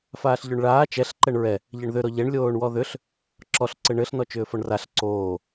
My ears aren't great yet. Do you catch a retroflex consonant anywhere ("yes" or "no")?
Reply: yes